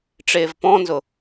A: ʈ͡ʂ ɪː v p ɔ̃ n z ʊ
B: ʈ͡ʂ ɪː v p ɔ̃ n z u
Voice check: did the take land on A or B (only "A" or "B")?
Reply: A